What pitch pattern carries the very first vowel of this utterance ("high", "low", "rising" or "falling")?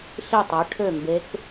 falling